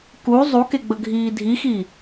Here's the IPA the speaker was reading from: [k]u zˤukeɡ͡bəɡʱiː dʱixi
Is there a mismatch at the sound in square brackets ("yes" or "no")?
no